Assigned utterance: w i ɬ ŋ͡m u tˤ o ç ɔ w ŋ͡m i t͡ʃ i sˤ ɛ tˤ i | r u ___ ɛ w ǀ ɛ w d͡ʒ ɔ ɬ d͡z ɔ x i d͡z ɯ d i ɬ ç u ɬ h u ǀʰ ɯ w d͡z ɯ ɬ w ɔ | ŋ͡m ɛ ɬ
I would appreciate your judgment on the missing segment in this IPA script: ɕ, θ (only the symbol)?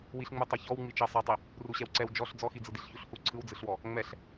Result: ɕ